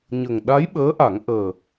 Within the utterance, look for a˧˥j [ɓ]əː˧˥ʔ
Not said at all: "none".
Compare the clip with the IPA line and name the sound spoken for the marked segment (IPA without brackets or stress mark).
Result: ɓ